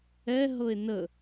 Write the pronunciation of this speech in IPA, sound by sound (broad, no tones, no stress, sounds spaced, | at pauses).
ɛ ɦ ɤ e̯ n ə